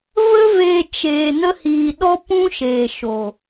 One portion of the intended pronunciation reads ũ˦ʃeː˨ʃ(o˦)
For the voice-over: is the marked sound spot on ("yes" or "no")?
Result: no